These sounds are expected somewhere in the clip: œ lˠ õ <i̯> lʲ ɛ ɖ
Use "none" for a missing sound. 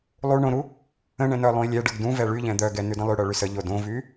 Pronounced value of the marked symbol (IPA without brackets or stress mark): i̯